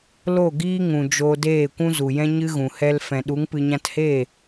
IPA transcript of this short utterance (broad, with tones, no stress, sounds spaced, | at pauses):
l o˦˨ ɡ iː˦ ŋ ũ˨ d͡ʒ oː˧ d eː˦˨ kʷ ũ˦ z u˨ j ɛ̃˦ ɲ ɨ˦ ɣ ũ˨ h ɛ˧ l f ɛ̃˨ ɗ u˨˦ ŋ p ɨ˧ ɲ ã˦ t h eː˦˨